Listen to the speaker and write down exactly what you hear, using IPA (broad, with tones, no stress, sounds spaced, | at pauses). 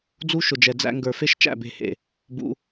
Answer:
d͡z u˦ ʃ ʊ˨ d͡ʒ ɛ˨ d͡z æ̰˧ ŋ ɡ ə˞˨ f e˦ ʃ t͡ʃ æ̰˦˨ b e̤˦˨ h ḛ˨ | b ṵ˦